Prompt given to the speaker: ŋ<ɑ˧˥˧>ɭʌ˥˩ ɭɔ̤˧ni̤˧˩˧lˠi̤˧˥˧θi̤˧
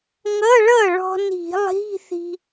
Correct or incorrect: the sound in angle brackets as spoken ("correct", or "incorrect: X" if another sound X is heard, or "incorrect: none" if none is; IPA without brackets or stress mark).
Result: incorrect: ʌ˧˥˧